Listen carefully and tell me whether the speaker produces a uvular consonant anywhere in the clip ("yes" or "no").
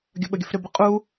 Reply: yes